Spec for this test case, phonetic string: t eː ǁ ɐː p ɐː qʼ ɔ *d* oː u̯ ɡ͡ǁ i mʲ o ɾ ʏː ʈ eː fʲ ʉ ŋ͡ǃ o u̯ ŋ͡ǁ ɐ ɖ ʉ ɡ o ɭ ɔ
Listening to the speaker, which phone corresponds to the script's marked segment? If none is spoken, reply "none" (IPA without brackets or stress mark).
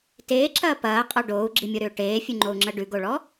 ɖ